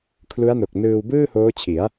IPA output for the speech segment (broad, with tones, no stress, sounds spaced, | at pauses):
kʰ l u˦˥ a̯ n o˨˩ k̚ n ɯː˧ w b ɯː˥˩ h oː˦˥ t͡ɕʰ i˩˦ a̯